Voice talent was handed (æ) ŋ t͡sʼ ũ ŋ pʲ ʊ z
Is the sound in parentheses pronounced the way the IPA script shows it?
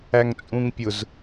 yes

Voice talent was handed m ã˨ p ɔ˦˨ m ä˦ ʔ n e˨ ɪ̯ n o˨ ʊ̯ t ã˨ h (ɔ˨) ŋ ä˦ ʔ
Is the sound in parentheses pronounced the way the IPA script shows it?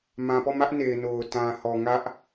yes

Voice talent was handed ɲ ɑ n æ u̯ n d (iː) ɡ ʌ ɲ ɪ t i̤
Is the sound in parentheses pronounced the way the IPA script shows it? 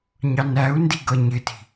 no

